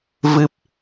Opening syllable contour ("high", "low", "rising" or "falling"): low